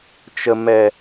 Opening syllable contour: low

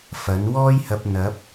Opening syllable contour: rising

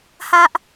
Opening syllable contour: high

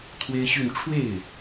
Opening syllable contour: high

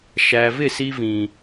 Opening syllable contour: low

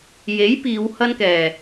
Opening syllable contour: rising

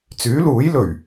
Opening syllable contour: rising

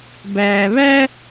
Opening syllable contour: low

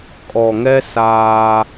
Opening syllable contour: low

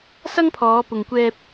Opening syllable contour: high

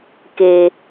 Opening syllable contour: low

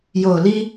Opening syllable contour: low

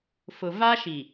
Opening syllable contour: low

